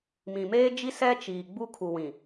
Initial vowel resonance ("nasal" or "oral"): nasal